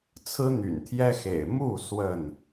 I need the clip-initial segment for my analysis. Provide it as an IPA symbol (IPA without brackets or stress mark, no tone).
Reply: t͡sʰ